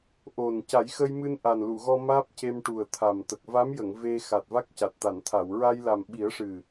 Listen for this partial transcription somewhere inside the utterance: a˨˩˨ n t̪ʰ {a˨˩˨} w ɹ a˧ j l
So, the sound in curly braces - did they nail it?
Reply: yes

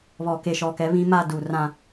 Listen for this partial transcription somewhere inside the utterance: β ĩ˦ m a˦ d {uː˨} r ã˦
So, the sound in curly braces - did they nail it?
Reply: no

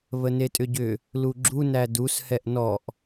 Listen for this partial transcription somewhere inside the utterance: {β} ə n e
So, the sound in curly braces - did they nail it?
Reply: yes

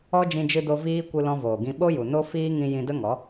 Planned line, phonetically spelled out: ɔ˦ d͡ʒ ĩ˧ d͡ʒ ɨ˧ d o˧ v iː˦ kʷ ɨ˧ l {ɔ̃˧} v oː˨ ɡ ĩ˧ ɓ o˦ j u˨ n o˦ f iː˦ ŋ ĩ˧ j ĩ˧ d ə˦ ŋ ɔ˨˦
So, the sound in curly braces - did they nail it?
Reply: yes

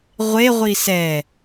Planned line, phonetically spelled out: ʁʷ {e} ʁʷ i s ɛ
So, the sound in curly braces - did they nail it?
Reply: yes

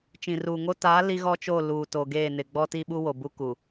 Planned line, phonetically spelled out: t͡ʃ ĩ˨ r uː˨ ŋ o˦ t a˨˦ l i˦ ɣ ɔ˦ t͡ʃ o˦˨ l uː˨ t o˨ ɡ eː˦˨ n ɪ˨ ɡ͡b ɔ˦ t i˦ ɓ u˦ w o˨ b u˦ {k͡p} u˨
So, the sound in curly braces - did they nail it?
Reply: no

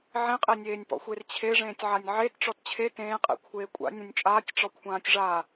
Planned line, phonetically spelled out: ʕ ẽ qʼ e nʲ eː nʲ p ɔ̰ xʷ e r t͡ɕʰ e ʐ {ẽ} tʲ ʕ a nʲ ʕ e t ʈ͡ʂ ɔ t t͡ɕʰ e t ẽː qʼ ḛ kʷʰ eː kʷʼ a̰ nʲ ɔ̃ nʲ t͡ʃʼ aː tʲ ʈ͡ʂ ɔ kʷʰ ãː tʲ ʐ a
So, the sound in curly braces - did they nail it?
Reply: no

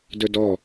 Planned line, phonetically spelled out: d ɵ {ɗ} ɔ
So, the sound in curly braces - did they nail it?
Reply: no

